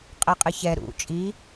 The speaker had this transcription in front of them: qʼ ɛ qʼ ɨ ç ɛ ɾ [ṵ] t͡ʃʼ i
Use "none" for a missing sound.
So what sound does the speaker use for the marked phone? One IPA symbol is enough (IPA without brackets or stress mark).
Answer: ṵ